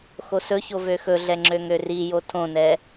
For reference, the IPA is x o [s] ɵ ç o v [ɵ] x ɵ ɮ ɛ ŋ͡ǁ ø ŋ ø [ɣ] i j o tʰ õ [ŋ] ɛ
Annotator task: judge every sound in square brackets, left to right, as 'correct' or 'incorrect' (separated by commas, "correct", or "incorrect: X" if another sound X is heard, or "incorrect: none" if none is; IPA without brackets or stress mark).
correct, incorrect: ø, incorrect: r, incorrect: n